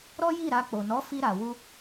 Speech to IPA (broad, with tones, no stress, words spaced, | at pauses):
ɾɔ˦ji˦˨ɾa˧ k͡po˨nɔ˨˦fi˧ ɾa˨wu˧